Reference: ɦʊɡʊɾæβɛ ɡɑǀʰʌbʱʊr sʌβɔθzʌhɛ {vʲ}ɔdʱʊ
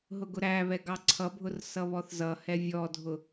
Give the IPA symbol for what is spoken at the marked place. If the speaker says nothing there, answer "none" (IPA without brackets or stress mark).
vʲ